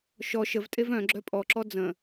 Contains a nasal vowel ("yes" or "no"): yes